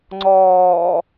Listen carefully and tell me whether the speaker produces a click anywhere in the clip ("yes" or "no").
yes